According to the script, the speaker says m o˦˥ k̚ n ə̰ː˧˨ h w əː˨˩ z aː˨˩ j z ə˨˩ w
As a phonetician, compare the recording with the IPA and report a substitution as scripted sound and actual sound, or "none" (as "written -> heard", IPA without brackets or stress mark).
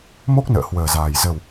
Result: none